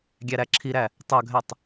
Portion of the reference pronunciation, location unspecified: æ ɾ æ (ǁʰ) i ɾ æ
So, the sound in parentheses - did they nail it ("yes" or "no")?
yes